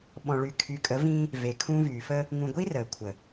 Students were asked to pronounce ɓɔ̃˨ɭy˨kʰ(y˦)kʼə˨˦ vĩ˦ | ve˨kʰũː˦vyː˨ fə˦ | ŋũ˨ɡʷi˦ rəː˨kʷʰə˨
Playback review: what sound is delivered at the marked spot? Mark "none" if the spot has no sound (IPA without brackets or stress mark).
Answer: y˨